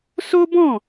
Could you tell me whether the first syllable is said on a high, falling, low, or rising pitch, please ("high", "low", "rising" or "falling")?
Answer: high